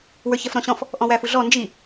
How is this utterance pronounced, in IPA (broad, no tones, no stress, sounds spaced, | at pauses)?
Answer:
w ə˞ ç ɛ f ɾ ɔ̃ ɕ ɔ̃ f | ʔ ɔ̃ w æ f u ɮ ɔ n d͡ʒ i